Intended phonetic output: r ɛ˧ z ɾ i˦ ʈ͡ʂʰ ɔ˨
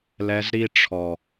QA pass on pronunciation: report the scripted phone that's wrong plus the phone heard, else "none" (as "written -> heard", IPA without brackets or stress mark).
r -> l